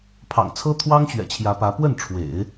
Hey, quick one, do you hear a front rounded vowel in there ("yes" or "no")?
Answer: no